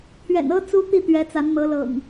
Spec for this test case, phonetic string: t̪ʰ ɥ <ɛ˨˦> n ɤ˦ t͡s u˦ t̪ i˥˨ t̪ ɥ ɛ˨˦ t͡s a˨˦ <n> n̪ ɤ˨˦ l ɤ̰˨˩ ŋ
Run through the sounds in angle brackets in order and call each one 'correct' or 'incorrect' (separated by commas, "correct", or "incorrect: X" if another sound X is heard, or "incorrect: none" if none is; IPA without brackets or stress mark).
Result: incorrect: ɛ̰˨˩, correct